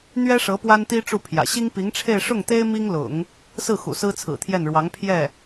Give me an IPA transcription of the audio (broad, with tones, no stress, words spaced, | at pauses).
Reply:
n̪ɥɛ˥ʂɤ˧˥ pwa˥nt̪i˥ ʈ͡ʂu˥˩pʰjä̰˨˩ ɕi˥ŋpi˧˥ŋʈ͡ʂʰe˥˧ɪ̯ ʂʊ˥˩ŋt̪e˥ɪ̯ mi˥ŋlʊ̰˨˩˦ŋ | sɹ̩˥˩ xṵ˨˩sɹ̩˥t͡sʰɹ̩˨˩t̪ʰjɛ˥˩n ɻwɑ˧˥ŋ pʰjɛ˥˩